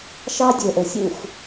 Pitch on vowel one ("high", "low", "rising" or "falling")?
high